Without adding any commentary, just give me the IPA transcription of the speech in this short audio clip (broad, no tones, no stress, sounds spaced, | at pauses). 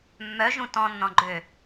mː œ ʒ ũ t ɔ̃ nː ɔ̃ ɡ͡ǃ ø